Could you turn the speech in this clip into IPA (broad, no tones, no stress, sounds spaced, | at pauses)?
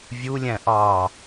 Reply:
vʲ u lʲ æ̃ ʔ ɑ